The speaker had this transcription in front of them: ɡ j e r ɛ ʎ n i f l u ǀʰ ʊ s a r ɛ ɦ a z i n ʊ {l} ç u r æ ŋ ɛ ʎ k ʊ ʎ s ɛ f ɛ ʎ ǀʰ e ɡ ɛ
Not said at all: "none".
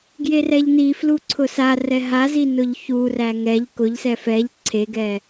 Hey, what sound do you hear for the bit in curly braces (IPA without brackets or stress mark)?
ʎ